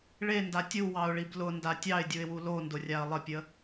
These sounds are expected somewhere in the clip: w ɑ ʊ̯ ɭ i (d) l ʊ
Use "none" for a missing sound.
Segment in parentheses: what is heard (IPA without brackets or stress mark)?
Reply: b